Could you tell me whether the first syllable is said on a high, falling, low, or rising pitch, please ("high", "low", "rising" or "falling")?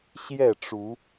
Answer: falling